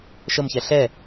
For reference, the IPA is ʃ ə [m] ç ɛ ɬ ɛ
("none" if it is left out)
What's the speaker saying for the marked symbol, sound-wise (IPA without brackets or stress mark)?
m